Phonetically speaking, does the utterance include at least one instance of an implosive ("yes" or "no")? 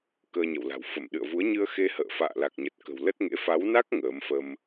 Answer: yes